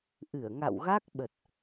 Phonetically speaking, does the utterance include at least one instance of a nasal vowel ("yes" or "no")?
no